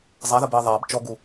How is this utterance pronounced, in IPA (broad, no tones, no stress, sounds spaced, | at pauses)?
zˤ æ ð ə b i ðˤ æ b t͡ʃ ɔ ɡ u